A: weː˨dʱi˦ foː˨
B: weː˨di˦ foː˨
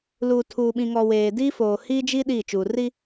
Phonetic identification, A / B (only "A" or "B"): B